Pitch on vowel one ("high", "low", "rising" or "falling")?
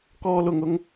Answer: high